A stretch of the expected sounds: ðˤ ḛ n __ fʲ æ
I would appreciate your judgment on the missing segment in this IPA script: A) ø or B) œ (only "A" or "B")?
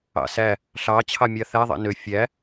A